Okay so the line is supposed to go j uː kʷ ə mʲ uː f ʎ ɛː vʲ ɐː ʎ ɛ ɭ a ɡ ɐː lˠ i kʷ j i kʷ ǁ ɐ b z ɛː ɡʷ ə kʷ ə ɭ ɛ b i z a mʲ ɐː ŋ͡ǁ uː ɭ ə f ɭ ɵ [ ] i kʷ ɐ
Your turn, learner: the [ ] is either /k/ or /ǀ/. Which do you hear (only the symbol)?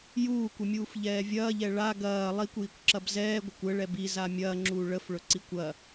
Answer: ǀ